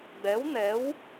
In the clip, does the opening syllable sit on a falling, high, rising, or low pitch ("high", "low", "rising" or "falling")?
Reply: rising